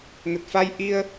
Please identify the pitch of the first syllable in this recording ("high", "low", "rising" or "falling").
low